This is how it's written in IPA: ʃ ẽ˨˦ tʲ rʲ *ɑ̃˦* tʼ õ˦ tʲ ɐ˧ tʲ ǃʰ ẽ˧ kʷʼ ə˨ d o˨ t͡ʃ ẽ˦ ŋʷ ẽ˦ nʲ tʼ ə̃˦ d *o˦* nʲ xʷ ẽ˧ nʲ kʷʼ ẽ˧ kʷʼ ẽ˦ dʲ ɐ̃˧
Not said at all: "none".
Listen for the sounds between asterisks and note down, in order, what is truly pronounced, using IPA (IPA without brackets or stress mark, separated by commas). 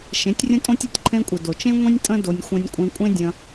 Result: ə̃˦, o˧